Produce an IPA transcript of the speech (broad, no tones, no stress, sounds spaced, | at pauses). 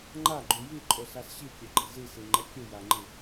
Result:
ŋ͡ǃ a ɡ͡ǃ u j i ǃʼ o s a s ɕ i kʲ e ɡ͡ǃ i z i s i ŋ͡ǃ ɛ kʲ ɯ j a ŋ͡ǃ i